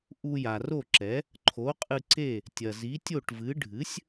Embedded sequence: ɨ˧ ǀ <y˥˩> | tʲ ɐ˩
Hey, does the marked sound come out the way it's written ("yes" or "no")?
no